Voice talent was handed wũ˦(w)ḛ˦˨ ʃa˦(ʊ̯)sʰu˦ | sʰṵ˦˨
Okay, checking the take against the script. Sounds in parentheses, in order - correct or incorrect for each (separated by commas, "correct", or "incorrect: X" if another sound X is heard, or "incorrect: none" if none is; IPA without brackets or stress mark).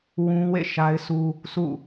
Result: correct, incorrect: ɪ̯